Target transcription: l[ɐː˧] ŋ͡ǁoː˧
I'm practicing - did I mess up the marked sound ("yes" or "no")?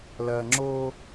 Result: no